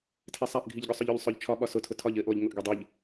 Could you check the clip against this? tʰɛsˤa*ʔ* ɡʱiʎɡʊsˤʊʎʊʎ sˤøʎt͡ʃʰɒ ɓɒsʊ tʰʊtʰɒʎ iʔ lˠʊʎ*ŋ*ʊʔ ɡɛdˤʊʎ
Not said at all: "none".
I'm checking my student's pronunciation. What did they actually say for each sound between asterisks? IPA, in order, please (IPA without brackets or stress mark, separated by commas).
ʔ, ŋ